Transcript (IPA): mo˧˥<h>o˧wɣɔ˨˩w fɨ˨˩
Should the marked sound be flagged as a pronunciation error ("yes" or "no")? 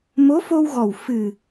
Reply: yes